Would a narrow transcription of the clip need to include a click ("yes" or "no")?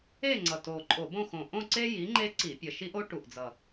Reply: yes